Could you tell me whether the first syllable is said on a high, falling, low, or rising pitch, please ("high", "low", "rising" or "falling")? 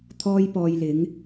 high